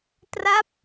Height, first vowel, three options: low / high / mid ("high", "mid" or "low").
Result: low